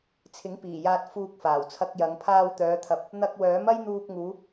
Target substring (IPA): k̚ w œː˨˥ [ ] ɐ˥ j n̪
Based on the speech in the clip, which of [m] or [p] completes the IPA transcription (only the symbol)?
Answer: m